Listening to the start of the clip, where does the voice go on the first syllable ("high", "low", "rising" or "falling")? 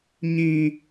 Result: high